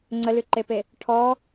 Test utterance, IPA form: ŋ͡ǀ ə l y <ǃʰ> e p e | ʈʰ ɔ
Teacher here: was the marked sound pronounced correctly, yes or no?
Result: no